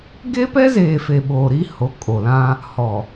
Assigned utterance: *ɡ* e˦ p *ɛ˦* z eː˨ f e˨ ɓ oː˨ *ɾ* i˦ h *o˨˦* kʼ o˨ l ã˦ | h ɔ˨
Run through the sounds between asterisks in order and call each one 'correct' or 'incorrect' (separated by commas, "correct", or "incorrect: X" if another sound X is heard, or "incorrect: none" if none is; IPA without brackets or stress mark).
correct, correct, correct, correct